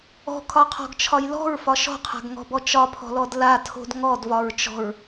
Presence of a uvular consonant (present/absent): present